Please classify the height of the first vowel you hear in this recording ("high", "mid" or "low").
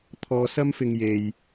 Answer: mid